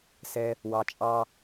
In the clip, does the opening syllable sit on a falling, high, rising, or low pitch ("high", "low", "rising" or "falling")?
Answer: high